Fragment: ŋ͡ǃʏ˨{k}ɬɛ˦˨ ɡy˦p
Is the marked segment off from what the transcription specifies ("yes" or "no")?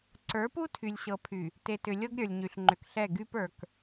no